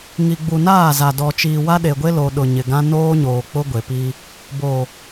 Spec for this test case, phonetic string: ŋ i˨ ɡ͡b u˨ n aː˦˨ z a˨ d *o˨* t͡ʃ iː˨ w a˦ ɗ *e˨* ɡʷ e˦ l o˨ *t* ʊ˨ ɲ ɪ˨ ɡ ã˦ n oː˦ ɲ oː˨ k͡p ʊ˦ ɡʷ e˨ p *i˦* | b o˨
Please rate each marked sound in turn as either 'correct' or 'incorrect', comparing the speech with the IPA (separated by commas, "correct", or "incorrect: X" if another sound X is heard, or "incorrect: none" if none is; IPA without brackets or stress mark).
incorrect: ɔ˨, correct, incorrect: ɗ, correct